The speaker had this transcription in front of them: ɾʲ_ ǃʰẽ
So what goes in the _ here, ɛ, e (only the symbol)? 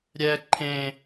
ɛ